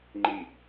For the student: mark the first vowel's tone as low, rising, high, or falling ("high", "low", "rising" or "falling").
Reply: falling